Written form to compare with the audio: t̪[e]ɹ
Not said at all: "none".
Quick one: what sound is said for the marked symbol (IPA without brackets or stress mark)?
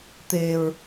e